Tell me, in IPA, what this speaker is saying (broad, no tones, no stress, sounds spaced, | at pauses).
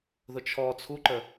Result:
ð ʊ t͡ʃʰ ɔ t͡sʰ u ǃ ə